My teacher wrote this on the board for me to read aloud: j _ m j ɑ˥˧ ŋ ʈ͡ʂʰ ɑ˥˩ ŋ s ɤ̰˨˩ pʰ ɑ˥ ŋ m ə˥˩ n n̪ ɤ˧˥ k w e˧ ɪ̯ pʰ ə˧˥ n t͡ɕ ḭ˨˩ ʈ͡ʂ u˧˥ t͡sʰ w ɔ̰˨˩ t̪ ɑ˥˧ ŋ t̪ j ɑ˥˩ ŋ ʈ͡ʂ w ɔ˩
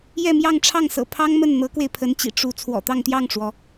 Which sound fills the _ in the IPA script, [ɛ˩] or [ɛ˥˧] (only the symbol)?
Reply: ɛ˥˧